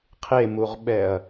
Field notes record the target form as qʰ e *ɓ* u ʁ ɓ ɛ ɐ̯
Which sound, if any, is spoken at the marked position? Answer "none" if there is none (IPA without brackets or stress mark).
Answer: m